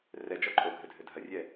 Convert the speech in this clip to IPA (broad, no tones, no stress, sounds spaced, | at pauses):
r ɛ d͡ʒ ɔ ǃʼ o ɡʱ ɘ dʱ ɘ dʱ ɐ rʲ ɛ